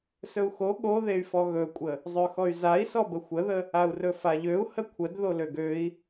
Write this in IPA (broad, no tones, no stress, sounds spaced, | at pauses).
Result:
s ɵ u̯ x o ɠ o ð e y̯ f ɔ ɣ ɵ kʷʼ ə | zˤ ø x ɔ y̯ z a i̯ s ɔ b ə xʷ ə ð ə | a u̯ r ɵ f a ʎ ø u̯ h ə kʷʰ ə d ð o l ø ɡ ø i̯